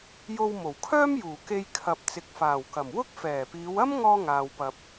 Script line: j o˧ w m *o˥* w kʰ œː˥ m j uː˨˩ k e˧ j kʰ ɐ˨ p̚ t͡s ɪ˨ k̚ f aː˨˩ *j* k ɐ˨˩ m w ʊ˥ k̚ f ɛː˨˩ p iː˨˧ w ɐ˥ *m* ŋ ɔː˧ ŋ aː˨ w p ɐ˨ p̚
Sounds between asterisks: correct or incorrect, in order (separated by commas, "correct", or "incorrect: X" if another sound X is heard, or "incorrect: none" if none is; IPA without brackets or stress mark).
incorrect: o˨˩, incorrect: w, correct